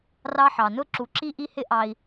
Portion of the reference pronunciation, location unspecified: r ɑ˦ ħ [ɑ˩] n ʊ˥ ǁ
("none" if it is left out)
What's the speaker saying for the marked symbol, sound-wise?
ɑ˩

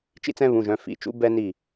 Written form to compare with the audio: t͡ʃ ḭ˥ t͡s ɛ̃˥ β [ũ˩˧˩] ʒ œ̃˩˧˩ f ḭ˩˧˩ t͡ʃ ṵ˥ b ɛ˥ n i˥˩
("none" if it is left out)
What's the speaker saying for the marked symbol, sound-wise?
ũ˩˧˩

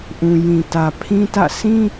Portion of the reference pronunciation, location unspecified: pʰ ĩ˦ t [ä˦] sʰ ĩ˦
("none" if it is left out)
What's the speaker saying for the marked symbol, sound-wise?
ä̰˦˨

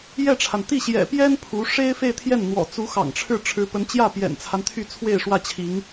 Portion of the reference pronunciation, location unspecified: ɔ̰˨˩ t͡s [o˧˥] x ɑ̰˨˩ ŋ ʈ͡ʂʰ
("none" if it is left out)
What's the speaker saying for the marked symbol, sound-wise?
u˧˥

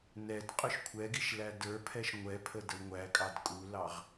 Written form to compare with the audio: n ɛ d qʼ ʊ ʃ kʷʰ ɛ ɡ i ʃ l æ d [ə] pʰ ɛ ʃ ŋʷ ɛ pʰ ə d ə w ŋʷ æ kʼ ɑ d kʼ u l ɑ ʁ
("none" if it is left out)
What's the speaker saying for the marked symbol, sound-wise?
ə˞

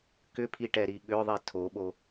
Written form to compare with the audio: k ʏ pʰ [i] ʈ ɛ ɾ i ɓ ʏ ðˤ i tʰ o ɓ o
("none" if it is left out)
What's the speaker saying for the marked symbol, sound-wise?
i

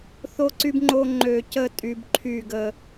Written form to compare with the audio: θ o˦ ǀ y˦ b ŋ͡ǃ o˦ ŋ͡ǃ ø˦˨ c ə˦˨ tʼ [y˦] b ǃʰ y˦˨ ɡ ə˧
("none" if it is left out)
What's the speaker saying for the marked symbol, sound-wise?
y˧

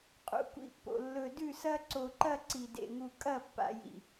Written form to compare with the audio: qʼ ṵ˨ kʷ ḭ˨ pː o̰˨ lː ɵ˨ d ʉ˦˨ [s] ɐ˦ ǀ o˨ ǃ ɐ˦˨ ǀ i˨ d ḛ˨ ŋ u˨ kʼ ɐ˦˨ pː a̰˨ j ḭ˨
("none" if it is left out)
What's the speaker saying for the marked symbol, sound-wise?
s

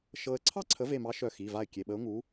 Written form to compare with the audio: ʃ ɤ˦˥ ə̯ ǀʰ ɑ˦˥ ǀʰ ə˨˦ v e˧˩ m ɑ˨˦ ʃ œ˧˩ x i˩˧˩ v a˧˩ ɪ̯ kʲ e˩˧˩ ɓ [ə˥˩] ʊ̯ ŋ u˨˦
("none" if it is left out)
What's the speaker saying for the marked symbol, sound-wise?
ə˨˦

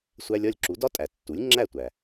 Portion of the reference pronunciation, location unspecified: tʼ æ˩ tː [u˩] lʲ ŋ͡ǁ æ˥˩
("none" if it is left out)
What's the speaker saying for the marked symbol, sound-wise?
u˩˥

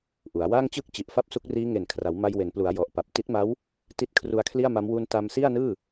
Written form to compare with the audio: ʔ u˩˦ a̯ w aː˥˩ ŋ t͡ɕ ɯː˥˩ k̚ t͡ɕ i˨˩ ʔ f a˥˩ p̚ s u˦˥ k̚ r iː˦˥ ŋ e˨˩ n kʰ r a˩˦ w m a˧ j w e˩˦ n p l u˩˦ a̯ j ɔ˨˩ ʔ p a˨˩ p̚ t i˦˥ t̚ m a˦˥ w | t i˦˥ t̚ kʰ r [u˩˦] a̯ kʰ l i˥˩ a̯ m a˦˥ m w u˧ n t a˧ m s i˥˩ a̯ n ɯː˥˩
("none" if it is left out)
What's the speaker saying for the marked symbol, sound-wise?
u˧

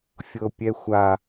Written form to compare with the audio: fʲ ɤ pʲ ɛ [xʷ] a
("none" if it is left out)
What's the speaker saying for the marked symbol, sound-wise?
xʷ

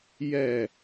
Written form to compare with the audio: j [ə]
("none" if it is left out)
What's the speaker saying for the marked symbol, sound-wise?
ɛ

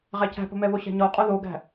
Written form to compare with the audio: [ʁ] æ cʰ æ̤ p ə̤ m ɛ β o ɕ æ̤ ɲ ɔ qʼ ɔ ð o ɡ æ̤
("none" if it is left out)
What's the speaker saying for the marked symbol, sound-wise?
ʁ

